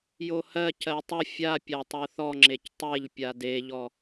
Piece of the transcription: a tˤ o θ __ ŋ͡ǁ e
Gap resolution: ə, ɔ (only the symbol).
ɔ